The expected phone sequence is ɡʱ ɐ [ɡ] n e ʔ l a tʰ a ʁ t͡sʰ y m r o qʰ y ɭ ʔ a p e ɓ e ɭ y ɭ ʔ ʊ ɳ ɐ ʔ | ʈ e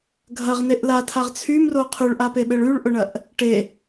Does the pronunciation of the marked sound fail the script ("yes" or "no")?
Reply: yes